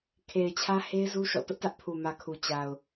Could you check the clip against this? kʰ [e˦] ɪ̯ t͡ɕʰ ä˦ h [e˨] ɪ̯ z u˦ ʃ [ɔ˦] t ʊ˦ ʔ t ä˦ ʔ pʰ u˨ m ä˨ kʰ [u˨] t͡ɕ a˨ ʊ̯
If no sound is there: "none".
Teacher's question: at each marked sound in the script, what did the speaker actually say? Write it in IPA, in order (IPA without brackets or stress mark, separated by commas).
e˨, e˦, ɔ̰˦˨, u˨